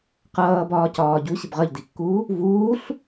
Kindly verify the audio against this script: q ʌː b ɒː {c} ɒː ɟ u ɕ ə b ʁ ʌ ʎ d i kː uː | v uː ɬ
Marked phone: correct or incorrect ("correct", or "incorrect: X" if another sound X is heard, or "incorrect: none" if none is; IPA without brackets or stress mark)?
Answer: correct